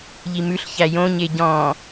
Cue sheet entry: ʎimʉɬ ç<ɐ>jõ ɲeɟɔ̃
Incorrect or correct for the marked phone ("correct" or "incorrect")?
incorrect